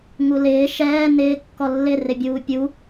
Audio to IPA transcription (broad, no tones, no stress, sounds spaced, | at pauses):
ŋ u l ɪː ʃ ɛː n ɪː kː ɔ lː ɪ r ɪ bʲ uː pʲ u